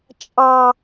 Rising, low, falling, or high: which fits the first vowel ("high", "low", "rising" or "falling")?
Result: high